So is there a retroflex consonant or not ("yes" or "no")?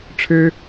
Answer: yes